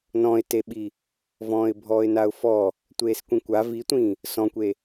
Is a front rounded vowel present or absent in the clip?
absent